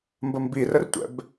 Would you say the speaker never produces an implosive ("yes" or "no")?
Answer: yes